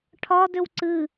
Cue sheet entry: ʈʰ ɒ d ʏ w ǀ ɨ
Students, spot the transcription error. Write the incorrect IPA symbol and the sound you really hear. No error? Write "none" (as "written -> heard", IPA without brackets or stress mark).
none